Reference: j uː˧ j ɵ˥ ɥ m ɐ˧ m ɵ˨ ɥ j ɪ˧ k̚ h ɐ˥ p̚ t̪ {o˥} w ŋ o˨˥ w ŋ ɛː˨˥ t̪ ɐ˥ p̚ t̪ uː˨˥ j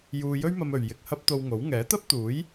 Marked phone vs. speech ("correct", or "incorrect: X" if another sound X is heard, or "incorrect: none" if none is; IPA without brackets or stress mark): incorrect: o˧